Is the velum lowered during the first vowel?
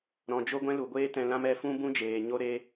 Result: yes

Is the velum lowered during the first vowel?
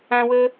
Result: yes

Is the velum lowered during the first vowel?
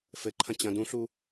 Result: no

